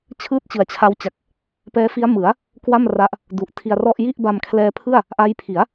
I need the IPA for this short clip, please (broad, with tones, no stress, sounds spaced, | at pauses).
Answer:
t͡ɕʰ ɯː˥˩ t̚ t͡ɕ ɯ˨˩ a̯ t͡ɕʰ a˦˥ w t͡ɕ a˨˩ k̚ | p ɛː˦˥ f i˦˥ a̯ m ɯ˩˦ a̯ | k w a˥˩ m r a˦˥ ʔ | d u˨˩ ʔ tʰ i˧ a̯ r ɔ˥˩ ʔ j i˥˩ ʔ b a˧ m kʰ l ɛː˧ pʰ ɯ˥˩ a̯ | ʔ a˦˥ j pʰ i˩˦ a̯